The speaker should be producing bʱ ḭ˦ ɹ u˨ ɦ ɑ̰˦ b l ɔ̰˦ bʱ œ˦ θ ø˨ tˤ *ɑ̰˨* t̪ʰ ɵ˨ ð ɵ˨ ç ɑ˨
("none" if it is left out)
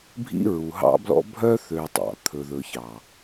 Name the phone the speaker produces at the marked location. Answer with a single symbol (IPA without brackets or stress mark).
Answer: ɑ̰˨